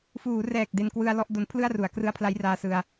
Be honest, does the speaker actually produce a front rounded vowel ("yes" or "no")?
no